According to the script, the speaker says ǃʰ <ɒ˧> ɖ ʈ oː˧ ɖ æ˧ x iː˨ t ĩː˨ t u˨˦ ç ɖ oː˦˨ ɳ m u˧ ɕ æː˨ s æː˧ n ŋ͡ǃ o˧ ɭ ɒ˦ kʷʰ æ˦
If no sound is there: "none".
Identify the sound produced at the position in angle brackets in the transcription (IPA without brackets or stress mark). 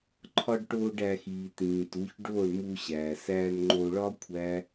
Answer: ɒ˧